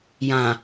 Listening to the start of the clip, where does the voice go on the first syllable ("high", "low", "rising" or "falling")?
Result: low